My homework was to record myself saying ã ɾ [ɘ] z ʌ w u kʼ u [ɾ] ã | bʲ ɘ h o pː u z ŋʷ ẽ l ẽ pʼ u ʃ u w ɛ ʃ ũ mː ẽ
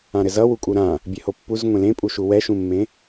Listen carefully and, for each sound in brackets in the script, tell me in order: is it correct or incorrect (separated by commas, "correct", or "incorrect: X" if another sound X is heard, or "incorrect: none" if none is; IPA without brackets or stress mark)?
correct, correct